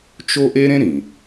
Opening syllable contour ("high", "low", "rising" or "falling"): high